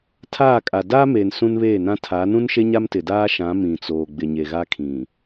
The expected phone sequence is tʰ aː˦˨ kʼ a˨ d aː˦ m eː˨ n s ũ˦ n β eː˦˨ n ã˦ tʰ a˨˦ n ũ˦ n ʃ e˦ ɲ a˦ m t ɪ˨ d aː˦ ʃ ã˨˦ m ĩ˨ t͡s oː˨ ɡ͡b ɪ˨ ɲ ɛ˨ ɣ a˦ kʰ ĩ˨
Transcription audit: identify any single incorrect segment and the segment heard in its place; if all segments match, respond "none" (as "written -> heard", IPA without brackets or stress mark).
ɛ˨ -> e˨